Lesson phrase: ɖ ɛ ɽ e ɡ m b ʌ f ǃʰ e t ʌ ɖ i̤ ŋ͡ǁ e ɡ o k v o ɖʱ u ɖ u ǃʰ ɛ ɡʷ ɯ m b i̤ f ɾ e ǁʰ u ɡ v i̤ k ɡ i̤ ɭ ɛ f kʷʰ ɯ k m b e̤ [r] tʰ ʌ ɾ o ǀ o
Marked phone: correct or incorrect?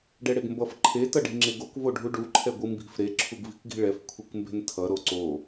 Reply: incorrect